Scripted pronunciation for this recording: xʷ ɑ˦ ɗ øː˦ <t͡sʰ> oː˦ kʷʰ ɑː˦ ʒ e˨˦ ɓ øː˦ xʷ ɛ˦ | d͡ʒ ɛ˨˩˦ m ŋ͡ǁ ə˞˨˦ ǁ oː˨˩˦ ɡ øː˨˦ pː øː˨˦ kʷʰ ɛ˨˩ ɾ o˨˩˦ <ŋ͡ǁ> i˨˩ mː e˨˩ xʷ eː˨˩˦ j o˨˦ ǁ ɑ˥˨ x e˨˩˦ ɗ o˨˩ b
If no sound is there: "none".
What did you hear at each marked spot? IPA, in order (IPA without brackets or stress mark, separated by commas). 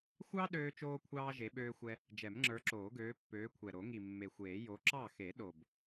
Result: t͡ʃ, ŋ